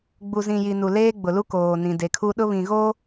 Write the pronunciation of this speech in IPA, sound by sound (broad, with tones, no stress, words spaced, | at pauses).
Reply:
ɡ͡bu˨ zĩ˨ji˨ nu˨leː˦ɡ͡bʊ˨lu˦ koː˨nĩ˨de˨kʰu˦ ɗʊ˦βĩ˨ɣo˦